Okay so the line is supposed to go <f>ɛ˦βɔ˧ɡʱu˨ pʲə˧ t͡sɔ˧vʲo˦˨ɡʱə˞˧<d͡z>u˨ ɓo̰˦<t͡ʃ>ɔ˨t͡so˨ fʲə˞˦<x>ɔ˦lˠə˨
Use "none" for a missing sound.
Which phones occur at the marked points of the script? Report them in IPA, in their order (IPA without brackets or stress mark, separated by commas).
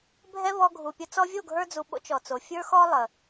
bʱ, d͡z, t͡ʃ, x